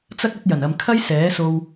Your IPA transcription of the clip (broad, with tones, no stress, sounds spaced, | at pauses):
t͡s ɐ˥ k̚ ɐ˥ t̚ j ɐ˨˩ n ɐ˨ m kʰ ɐ˥ j s ɛː˨˥ s o˧ w